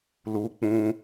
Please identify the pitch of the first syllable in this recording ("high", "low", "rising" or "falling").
high